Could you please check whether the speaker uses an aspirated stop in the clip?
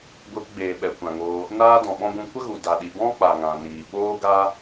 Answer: no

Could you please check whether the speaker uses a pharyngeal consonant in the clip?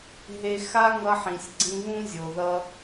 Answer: yes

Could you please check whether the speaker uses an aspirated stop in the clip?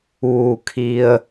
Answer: yes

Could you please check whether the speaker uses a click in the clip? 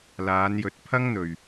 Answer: no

